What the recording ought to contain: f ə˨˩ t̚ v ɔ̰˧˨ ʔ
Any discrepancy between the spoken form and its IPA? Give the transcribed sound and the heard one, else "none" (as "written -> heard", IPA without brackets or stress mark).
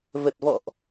f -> v